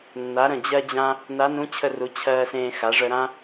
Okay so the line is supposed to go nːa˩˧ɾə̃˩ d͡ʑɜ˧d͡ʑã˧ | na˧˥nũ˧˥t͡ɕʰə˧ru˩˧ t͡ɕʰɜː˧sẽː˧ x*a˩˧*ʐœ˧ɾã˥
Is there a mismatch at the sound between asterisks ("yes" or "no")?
no